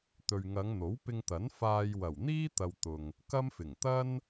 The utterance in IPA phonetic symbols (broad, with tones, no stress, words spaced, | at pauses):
t̪ɵ˨ɥŋɐ˨˧ŋ n̪o˨˥wpɪ˧ŋt̪ɐ˨˥n faː˧j wɐ˨˩wn̪iː˥t̪ɐ˨w t̪ʊ˨ŋ | kɐ˥mfɪ˨˩ŋ t̪ɐ˥n